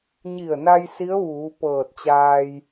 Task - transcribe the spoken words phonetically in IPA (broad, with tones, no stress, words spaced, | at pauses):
ɲi˧˩ə̯na˧j si˧˥ə̯ʋuː˩˧ pɤː˧˩t̚t͡ɕaː˧j